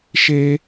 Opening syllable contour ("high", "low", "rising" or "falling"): high